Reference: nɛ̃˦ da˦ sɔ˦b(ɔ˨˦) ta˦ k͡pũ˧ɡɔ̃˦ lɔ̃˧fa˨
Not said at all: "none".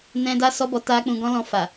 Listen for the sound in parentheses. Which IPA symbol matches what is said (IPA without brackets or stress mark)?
ɔ˧